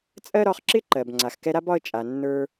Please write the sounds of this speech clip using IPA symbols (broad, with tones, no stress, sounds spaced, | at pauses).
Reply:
t͡sʼ ɜ˥ ɾ ɒ˦ χ ǁ ɪ˥ ǃ ɜ˨ b ŋ͡ǀ a˨ x k ɛ˦ ɾ a˥ b ɒ˦ ə̯ t͡ʃʼ a˨ nː ə˞˦